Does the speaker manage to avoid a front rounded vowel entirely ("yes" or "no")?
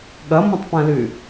no